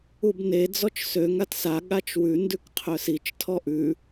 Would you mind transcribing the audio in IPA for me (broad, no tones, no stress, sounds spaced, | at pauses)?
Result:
u b n e d͡z ɔ t͡ʃ s ø ŋ a t s a ɠ a t͡ʃ w ʉ n d ʉ k qʰ œ s i t͡ʃ tʰ ɔ ʔ ʉ